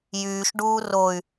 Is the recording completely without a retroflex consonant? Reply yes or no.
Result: no